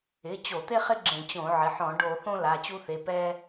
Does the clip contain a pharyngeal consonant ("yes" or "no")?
yes